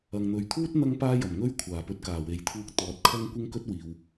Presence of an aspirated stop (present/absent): present